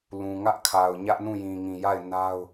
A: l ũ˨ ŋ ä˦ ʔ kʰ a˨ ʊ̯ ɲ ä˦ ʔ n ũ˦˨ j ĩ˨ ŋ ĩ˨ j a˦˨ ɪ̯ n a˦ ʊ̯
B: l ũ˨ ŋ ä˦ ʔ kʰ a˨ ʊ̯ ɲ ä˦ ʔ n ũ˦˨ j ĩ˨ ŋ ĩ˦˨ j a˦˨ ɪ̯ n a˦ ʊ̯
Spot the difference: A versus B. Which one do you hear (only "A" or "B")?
A